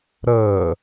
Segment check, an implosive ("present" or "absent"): absent